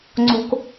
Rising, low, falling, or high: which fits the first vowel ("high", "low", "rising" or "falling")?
high